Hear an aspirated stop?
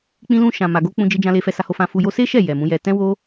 no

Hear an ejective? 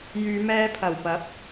no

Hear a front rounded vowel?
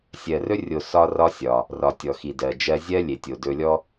no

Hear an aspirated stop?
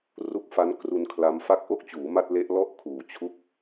yes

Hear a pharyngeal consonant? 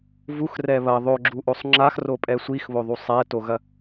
no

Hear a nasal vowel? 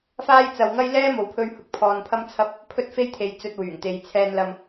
no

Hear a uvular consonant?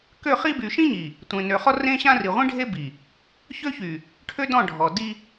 yes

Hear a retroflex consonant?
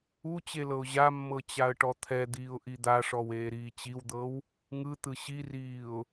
yes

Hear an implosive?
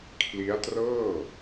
no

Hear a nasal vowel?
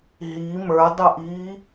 no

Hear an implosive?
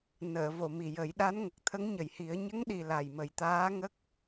yes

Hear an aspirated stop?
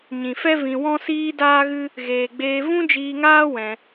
no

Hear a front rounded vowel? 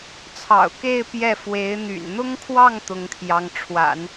yes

